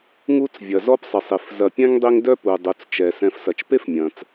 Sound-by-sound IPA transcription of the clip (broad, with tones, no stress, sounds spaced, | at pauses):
ŋ u˦ t͡s vʲ ɐ˩ z ɔ˦ p sˤ ɪ˩ sˤ i˩ f z ɐ˨ pʲ ɛ̃˥ ŋ dˤ i˦ ŋ d œ˦ p u˩ dˤ u˩ t͡s t͡ʃ ɛ˩ s ɛ̃˨ f s ɐ˩ t͡ʃ p e˥ f mʲ ɐ̃˩ t͡s